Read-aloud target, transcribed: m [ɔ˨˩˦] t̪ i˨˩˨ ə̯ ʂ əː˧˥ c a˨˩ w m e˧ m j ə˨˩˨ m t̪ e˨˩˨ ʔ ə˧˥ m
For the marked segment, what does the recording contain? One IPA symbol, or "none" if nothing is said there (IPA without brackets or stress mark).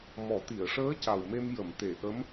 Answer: ɔ˨˩˦